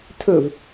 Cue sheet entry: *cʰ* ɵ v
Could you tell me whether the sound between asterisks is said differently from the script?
yes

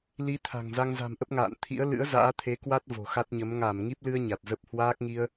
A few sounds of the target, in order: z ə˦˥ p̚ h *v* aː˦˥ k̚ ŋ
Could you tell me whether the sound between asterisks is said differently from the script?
yes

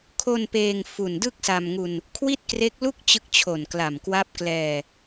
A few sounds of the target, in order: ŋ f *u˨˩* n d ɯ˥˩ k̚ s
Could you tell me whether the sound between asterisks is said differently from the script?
no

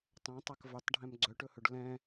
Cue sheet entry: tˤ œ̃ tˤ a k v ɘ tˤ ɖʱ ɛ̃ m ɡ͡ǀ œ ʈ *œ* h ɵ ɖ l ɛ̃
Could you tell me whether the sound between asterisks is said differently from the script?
yes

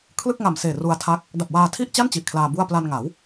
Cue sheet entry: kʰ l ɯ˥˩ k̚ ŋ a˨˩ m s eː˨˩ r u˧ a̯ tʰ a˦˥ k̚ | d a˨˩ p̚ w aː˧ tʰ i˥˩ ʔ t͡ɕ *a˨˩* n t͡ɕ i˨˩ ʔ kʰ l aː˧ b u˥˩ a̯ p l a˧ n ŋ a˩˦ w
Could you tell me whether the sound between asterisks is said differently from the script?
yes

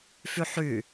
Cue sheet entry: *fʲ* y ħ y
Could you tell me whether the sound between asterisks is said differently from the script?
yes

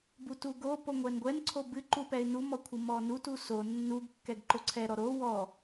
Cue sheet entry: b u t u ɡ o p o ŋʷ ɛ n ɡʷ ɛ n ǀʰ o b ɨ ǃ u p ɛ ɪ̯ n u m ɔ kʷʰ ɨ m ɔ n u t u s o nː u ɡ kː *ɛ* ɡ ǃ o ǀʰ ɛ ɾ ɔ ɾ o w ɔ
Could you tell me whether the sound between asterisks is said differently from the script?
no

